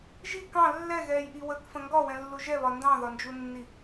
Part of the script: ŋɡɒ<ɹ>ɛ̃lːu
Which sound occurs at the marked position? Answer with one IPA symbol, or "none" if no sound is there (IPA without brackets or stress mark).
w